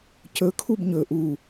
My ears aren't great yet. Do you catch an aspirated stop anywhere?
yes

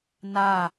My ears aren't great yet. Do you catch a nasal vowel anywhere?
no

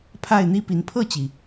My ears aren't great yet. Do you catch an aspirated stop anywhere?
yes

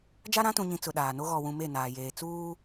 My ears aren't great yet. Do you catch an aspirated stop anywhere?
no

